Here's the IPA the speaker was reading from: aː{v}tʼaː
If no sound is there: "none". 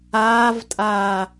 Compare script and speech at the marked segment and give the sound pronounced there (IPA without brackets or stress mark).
v